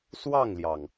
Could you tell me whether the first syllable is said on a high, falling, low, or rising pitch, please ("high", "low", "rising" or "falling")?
falling